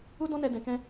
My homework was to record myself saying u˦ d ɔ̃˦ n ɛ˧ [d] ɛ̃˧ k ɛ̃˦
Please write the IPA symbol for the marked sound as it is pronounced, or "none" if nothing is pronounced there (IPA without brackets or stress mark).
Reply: d